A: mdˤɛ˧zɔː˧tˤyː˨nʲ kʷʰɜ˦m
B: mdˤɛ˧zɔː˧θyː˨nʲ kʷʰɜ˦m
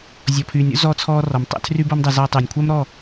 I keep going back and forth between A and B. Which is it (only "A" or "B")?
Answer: A